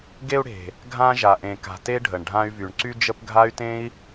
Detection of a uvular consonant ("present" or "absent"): absent